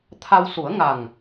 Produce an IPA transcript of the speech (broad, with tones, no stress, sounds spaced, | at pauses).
t̪ʰ a˧ w s u˨˩˦ ə̯ ŋ a˨˩ ŋ